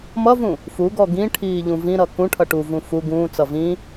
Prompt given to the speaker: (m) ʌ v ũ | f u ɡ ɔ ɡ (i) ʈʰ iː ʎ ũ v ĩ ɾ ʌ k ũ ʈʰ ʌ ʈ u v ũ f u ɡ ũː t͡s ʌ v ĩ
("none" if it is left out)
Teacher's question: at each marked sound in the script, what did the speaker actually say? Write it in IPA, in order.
m, ĩ

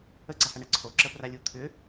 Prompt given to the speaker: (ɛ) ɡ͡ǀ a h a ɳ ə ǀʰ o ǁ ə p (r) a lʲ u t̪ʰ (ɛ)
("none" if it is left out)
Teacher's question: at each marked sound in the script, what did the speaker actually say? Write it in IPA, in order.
ə, r, ʏ

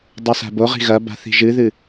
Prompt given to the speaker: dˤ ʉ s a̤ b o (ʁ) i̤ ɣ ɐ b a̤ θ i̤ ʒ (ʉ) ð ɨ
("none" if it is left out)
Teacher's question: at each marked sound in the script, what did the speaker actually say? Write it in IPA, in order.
ʁ, ɨ

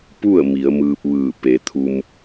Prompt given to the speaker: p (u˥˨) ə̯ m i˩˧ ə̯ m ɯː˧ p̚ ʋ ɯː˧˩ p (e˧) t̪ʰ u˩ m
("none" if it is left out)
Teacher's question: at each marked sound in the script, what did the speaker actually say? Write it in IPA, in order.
u˥˨, e˩˧

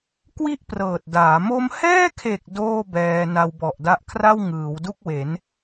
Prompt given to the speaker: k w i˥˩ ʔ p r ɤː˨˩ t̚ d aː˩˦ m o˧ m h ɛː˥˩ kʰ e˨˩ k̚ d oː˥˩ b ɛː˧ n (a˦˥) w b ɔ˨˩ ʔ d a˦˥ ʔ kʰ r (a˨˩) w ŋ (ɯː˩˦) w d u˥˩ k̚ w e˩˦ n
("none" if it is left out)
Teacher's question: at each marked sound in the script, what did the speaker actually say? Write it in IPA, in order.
a˧, a˥˩, ɯː˩˦

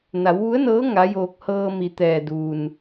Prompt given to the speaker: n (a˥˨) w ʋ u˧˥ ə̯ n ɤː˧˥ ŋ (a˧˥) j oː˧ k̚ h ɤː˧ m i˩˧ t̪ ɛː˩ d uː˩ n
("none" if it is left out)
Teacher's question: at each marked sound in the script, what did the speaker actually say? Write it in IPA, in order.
a˩˧, a˧˥

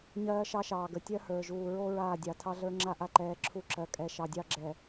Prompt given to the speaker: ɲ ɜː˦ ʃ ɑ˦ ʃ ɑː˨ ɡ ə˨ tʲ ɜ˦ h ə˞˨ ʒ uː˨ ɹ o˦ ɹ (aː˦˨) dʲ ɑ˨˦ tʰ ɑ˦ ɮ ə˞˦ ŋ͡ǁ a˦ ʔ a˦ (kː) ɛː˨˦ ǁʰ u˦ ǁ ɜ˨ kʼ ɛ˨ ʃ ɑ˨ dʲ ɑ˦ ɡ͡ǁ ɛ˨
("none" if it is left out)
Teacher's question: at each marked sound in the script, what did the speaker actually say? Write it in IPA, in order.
aː˦˨, ǃ

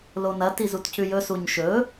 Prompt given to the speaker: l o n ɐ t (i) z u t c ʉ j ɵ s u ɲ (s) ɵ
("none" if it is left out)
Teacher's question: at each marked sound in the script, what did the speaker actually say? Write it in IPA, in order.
i, ʃ

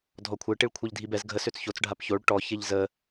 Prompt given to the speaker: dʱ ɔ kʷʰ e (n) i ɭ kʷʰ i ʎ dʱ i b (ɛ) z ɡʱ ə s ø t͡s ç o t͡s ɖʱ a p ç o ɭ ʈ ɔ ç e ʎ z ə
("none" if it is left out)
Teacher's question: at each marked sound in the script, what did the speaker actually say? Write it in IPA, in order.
ʈ, ɛ

